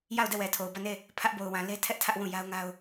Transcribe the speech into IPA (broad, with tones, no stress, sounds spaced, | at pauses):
j a˦˨ ʊ̯ d ɛ˦˨ w ɛ˨ tʰ o˨ ʊ̯ b ä˦˨ n e˦˨ | pʰ ä˦ ʔ b o˨ ʊ̯ w ã˨ l e˦ tʰ ɛ˦ ʔ tʰ ä˦ ʔ w ũ˦˨ j a˦ ʊ̯ ŋ a˦ ʊ̯